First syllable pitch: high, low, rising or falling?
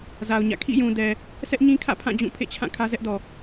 low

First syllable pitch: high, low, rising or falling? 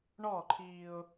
falling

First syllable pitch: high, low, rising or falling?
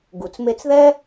low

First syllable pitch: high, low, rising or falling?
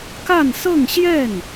falling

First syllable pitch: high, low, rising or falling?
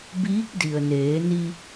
rising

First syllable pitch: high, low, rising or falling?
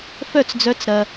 falling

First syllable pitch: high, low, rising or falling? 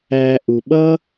low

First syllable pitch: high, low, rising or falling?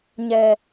low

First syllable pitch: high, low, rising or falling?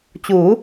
rising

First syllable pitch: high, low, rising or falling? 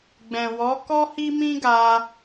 low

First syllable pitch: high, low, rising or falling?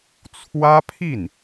high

